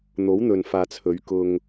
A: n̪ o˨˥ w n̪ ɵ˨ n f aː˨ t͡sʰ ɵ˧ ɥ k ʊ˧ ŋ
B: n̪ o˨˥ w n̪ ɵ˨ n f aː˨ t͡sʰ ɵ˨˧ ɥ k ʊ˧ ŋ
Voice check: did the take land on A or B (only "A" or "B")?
B